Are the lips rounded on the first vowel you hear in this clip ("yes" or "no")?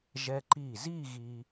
no